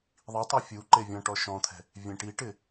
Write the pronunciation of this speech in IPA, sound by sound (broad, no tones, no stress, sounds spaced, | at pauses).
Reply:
ðˤ i tˤ e fʲ u ǃ e vʲ ɔ̃ ʈ ɔ ʃ ɔ̃ t̪ʰ ɛ̤ | vʲ ẽ ʈ i ʈ ɪ